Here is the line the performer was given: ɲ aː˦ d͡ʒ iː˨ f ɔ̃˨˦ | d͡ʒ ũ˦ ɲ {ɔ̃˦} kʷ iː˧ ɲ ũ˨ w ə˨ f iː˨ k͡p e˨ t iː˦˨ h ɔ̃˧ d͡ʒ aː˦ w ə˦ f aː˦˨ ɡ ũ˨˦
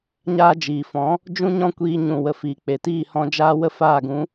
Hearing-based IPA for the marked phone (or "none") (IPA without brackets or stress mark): ɔ̃˦